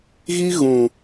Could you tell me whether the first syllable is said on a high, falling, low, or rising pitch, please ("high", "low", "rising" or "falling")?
high